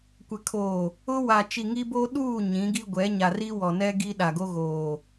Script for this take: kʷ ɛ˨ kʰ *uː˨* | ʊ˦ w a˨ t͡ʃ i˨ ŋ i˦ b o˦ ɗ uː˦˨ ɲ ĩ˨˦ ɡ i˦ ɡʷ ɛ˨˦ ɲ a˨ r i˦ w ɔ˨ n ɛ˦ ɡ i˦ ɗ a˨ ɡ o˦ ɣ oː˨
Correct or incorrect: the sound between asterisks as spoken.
incorrect: oː˨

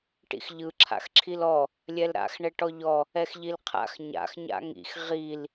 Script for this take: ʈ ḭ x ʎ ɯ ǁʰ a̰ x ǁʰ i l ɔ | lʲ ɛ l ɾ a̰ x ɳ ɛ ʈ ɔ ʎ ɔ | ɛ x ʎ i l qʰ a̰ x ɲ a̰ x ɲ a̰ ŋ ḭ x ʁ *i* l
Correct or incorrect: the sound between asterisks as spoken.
correct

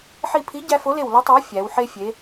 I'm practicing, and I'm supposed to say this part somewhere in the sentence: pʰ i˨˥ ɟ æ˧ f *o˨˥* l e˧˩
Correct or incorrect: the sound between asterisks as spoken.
correct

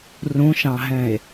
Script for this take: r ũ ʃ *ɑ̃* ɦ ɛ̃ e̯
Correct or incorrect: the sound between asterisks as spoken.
correct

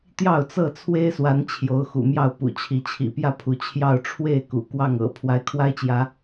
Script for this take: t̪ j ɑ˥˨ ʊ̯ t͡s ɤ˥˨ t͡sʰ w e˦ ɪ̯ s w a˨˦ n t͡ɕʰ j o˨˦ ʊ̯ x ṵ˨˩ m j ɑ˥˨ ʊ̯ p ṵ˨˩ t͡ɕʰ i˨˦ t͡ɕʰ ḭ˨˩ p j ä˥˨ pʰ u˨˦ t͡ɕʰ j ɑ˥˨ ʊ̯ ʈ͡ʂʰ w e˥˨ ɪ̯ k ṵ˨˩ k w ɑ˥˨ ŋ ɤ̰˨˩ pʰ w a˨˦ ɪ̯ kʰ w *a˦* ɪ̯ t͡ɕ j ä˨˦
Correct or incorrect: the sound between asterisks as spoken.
correct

